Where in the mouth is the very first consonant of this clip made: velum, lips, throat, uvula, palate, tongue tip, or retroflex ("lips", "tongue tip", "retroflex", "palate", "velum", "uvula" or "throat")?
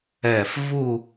lips